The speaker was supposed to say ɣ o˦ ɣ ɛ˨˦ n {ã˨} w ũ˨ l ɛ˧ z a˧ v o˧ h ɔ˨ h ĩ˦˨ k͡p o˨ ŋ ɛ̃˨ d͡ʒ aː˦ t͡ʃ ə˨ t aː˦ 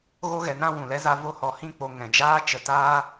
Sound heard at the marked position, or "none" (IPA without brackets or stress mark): ã˦